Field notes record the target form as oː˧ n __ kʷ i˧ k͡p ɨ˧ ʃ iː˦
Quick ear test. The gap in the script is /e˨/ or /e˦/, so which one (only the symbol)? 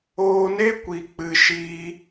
e˦